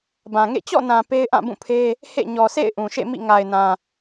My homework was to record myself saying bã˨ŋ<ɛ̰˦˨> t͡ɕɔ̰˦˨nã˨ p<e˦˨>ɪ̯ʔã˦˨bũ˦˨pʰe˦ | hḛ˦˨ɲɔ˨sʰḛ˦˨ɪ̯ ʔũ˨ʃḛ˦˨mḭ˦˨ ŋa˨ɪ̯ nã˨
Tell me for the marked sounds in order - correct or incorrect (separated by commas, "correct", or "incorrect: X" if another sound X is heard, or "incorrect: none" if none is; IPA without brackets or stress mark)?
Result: incorrect: ḛ˦˨, incorrect: e˦